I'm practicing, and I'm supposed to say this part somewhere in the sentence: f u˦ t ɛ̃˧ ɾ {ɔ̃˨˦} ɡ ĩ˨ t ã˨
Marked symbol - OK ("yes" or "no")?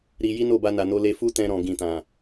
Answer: no